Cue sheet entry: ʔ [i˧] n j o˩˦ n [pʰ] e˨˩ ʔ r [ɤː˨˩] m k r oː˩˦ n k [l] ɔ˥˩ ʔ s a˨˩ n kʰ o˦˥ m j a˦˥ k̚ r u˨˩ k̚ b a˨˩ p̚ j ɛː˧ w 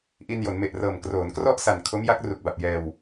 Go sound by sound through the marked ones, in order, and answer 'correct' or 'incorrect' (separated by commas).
correct, incorrect, correct, incorrect